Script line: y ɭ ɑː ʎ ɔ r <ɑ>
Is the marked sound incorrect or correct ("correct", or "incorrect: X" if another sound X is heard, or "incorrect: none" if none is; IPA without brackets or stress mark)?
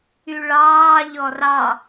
correct